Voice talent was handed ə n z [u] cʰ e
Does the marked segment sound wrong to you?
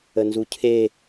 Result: no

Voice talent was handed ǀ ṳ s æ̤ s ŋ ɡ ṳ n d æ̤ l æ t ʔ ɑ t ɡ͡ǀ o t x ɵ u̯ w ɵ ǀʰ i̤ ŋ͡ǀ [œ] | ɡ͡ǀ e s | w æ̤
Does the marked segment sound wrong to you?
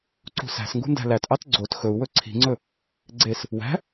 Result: yes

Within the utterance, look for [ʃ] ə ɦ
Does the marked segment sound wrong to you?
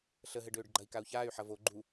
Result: yes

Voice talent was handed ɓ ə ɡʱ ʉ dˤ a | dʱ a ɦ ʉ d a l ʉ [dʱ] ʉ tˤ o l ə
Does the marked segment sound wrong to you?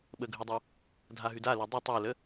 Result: yes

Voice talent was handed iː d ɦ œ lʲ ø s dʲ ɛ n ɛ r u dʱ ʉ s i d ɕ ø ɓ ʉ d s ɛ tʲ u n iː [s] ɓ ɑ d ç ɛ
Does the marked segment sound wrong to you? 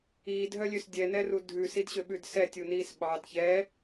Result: no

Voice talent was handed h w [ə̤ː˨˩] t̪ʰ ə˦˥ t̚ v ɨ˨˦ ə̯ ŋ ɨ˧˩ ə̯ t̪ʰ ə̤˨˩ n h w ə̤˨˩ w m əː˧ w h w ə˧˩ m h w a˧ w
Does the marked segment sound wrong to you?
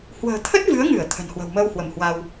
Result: no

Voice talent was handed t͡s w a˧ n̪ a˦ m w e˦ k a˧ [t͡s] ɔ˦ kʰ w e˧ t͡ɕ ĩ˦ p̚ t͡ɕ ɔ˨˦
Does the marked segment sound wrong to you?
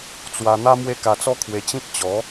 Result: no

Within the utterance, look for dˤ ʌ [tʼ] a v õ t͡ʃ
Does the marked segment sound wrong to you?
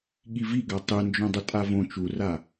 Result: no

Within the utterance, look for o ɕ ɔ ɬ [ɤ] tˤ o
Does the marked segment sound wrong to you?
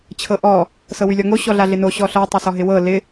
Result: no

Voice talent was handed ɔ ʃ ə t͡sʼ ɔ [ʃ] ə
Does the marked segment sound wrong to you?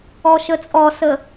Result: yes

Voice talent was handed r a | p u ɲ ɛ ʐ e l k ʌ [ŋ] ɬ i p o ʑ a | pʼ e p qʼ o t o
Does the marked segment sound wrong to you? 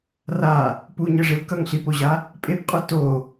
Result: no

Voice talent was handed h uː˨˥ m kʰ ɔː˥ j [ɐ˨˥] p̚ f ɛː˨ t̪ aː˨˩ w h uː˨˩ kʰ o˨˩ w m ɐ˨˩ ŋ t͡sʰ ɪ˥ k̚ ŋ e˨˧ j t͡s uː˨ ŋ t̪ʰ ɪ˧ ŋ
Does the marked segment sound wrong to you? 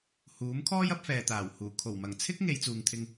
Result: no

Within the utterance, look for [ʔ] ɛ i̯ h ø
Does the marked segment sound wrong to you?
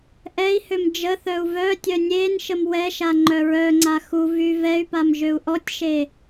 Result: no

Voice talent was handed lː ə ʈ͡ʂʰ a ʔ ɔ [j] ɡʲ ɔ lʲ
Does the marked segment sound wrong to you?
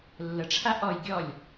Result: no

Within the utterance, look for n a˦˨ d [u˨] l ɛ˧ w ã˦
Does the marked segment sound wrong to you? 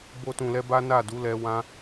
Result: yes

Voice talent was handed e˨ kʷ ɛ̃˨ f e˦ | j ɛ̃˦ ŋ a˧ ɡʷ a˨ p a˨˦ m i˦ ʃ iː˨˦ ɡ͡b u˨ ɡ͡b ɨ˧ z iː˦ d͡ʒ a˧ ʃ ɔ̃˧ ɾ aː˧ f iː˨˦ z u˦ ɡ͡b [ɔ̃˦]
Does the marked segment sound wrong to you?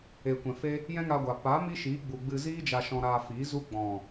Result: yes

